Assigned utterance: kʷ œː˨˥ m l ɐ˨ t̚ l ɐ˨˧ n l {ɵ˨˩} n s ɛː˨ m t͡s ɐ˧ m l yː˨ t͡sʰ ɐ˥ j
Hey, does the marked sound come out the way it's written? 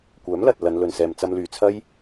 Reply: yes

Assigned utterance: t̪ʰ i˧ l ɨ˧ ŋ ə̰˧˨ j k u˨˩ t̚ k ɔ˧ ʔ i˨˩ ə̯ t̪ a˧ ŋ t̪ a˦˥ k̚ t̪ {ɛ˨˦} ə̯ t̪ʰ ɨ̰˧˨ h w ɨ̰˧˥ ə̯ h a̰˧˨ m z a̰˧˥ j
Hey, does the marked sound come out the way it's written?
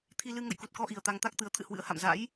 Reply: no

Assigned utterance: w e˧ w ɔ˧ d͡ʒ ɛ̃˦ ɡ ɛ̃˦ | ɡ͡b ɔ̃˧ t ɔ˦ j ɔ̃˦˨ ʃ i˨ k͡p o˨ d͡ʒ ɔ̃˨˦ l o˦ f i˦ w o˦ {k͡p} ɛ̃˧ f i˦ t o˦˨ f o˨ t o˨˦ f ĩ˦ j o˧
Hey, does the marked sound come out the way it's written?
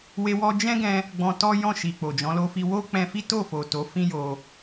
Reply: yes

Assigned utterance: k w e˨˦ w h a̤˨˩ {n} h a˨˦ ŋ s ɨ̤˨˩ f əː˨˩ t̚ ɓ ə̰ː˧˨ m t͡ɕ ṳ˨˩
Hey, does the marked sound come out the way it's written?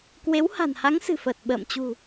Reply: yes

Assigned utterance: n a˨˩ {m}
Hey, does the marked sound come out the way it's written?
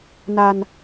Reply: no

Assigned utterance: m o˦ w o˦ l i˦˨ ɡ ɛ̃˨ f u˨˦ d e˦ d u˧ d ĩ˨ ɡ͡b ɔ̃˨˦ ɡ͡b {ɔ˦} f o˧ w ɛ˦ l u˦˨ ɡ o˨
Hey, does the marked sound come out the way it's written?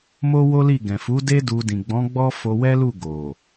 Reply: yes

